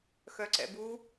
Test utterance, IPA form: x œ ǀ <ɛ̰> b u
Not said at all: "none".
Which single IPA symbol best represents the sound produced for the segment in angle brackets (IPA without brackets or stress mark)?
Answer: ɛ̰